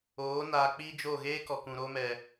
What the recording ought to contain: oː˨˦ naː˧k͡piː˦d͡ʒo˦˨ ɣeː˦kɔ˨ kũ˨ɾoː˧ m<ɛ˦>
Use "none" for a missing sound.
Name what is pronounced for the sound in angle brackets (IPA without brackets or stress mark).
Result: ɛ˨